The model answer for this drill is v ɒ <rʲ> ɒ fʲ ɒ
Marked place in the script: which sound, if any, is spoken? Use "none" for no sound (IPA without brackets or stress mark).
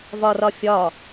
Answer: r